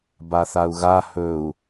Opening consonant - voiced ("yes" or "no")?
yes